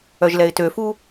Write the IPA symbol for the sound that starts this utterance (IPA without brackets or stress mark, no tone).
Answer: œ